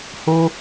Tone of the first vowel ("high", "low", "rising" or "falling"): high